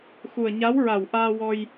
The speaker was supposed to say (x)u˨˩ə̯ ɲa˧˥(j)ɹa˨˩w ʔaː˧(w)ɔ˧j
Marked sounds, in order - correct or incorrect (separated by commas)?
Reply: correct, incorrect, correct